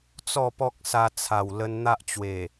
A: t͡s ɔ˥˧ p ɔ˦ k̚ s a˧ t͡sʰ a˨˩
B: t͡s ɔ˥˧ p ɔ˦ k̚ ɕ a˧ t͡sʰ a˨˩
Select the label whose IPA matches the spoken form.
A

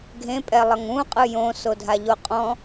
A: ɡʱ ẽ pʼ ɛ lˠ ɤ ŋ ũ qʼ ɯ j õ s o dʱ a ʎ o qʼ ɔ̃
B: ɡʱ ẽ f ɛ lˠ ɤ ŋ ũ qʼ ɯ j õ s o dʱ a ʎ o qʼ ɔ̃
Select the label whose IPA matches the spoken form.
A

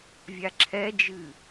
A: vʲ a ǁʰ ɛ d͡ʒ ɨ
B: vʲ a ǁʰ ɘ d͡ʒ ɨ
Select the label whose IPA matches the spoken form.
A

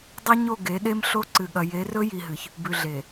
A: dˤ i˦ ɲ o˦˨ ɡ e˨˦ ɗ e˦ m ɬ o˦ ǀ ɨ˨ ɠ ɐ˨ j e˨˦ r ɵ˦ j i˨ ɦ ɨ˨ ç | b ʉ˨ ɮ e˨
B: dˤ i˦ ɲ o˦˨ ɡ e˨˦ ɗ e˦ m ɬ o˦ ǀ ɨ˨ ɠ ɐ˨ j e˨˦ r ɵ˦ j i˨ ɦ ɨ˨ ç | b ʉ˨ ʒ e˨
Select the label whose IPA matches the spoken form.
A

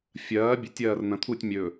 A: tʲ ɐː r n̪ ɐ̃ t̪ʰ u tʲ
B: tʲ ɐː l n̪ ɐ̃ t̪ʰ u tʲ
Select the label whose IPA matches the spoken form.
A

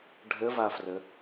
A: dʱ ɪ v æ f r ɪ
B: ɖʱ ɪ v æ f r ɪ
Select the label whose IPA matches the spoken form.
B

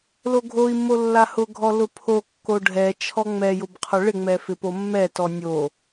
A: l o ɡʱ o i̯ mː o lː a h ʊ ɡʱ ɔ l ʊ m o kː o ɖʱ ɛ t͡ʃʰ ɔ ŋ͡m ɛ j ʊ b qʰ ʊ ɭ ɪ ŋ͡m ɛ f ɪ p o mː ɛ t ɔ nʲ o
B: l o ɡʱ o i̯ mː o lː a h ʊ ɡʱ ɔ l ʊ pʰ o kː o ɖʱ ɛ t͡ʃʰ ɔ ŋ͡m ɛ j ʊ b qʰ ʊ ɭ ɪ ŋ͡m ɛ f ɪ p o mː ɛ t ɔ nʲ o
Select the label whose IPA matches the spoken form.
B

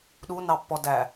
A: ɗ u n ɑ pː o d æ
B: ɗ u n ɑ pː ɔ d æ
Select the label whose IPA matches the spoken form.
B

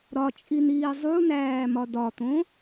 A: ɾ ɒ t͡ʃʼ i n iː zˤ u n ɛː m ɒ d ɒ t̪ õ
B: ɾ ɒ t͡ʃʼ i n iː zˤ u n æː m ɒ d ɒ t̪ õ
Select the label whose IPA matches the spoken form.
B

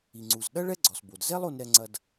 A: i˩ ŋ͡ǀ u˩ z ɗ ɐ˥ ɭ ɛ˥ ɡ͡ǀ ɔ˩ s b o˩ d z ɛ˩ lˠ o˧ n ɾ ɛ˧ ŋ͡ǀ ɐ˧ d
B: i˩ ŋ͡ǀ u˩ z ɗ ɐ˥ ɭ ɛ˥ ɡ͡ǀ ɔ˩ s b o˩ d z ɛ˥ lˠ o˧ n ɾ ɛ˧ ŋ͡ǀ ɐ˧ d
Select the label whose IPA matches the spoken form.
B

